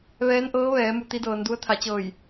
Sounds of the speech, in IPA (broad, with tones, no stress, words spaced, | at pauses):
ʋɛː˧˥nʔɤː˧˥ʋɛː˩˧ mu˩˧t̪i˧˥dɤː˩˧ndu˧˥ə̯ t̪ʰa˩˧t͡ɕɤː˧˩j